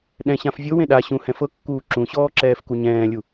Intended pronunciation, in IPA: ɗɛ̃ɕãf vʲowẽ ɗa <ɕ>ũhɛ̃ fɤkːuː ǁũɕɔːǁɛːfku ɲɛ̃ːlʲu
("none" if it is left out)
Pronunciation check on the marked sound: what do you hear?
ɕ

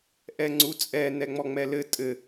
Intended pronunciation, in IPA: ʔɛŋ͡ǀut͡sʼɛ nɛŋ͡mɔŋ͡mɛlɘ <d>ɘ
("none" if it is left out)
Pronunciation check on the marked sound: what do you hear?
tʼ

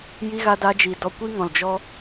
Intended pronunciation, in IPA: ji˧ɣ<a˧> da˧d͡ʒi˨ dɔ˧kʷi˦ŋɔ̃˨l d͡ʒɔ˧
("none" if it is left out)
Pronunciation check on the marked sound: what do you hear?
a˧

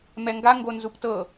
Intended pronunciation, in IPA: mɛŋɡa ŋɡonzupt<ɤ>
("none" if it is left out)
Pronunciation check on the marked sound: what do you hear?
ɤ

